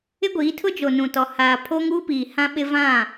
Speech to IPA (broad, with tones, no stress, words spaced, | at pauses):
ɪ˦ɡʷiː˨˦ tʰʊ˦d͡ʒo˨nũ˨tɔ˨ haː˨ pʰo˦ŋuː˦piː˨ hã˦ɓɪ˦ vã˦˨